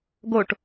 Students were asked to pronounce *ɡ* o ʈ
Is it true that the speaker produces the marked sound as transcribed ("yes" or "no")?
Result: yes